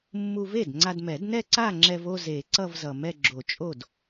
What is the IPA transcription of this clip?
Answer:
mː u˧ v e˥˩ d ŋ͡ǀ a˧ d m ɛ˨˩˦ d n ɛ˥˧ ǀ a˥˧ ŋ͡ǁ ɛ˧ v o˥˧ z e˨˩˦ ǀ ʌ˥˧ v z ʌ˨˩ m ɛ˥˧ ɡ͡ǁ o˨˩˦ t͡ʃʼ o˥˩ d

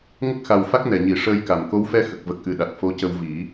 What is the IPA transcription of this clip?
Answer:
ŋ ə˦˥ k̚ x a˨˩ w f a˦˥ k̚ n ɛ˨˩˨ ɲ i˨˩˨ ʂ əː˧ j k a˨˩˨ m k o˧˥ w f ɛ˧ x ə˨˩ k̚ v ə˨˩ k̚ ʔ ɨ˨˩ ɗ a˨˩ t̚ f o˧˥ c ə˧ w v i˨˩˦

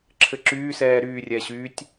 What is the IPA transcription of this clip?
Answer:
ǁʰ ɘ ǁ yː s ɛː ɾ yː rʲ ɛ ɕ yː tʲ

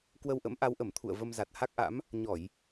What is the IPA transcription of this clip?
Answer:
k w ə˧ w ʔ ə̰˧˥ m ʔ a˨˦ w ʔ ə˧˩ m t̪ʰ ṵ˧˨ ə̯ v ə˧ m z a˨˩ t̚ h a˦˥ k̚ ʔ a̰˧˥ m | ɲ ɔ˧˩˨ j

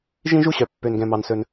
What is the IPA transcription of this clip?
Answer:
ʒ ĩ˥ ʒ u˥ ɕ œ˩ pː ø˩ n ɡ ɛ̃˩ m ɑ˩ n s ɵ˩ n

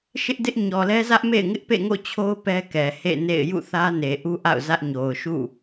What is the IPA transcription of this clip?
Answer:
ʃ ɪ˦ ʔ d ɪ˦ ʔ ɲ ɔ˨ l ɛ˦ z ä˦ ʔ m ḛ˦˨ ɪ̯ ŋ ɪ˦ ʔ p ḛ˦˨ ŋ o̰˦˨ t͡ɕʰ o˦ ʊ̯ p ɛ˦ k ɛ˨ h ḛ˦˨ n ḛ˦˨ ɪ̯ j ṵ˦˨ θ ä˦ n e˨ ʔ u˦ ʔ a̰˦˨ ʊ̯ z ä˦ ʔ ɲ o˨ ʊ̯ ʃ ṵ˦˨

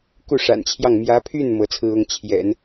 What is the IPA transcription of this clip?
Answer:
k u˥˩ ʂ a̰˨˩ n t͡ɕʰ j ɑ˥˩ ŋ m j ä˧˥ pʰ y˥˩ n m ɤ˧˥ t͡sʰ ɹ̩˥ ʊ˥ ŋ t͡ɕʰ j ɛ̰˨˩˦ n

